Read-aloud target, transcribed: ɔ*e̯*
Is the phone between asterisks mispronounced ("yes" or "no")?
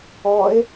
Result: no